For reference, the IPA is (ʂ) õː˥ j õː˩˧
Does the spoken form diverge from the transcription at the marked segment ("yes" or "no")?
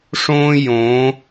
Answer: no